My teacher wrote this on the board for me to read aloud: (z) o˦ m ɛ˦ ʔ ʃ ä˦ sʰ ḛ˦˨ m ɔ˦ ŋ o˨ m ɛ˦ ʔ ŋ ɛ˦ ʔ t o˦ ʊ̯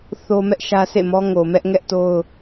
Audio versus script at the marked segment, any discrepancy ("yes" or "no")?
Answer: yes